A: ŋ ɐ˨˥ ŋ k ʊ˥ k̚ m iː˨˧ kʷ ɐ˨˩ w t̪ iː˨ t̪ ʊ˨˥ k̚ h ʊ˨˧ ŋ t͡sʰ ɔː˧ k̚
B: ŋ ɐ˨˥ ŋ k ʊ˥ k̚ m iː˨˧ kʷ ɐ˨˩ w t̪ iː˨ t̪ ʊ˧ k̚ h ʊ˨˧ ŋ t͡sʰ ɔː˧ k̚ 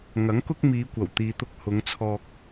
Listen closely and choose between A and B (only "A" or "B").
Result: B